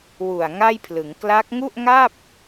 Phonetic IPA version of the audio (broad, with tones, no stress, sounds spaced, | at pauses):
w u˨˩ a̯ ŋ a˥˩ j pʰ l ɯ˩˦ ŋ k l a˦˥ k̚ ŋ u˥˩ ʔ ŋ a˥˩ p̚